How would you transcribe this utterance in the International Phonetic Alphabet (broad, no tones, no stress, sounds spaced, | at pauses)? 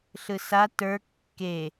ɬ ɯ s a t ə˞ kː e